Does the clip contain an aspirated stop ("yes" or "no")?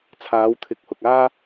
yes